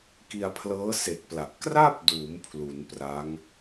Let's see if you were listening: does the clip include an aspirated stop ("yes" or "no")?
yes